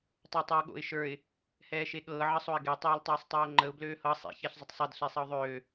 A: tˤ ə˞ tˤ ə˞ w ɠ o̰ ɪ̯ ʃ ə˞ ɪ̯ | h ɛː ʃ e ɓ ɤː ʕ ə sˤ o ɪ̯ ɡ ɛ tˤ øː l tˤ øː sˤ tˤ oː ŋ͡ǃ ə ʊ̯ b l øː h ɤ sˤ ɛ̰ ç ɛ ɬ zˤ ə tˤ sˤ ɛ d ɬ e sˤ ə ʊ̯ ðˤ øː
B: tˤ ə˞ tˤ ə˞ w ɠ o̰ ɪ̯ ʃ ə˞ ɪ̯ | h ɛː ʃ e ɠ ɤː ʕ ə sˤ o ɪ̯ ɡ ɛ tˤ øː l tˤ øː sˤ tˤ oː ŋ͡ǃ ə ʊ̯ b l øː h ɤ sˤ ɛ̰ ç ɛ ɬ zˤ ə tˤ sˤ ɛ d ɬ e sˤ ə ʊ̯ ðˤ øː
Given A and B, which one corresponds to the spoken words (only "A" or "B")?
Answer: B